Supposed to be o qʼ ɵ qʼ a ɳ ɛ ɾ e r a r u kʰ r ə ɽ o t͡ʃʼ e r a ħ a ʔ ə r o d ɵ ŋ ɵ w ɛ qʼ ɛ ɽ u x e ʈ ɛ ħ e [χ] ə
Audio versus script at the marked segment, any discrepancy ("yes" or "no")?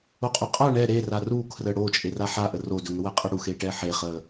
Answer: no